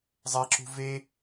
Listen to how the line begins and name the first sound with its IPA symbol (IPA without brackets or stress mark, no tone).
zˤ